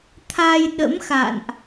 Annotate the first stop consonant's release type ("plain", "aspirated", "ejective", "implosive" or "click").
aspirated